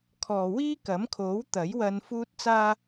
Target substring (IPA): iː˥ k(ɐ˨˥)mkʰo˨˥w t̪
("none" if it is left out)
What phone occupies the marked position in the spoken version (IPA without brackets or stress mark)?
ɐ˨˥